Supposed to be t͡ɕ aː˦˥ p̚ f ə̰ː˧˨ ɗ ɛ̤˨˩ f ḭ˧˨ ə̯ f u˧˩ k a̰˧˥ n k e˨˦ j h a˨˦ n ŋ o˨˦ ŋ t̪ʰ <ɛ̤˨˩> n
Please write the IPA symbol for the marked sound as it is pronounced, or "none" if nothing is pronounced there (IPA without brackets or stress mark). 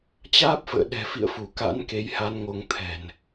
ɛ̤˨˩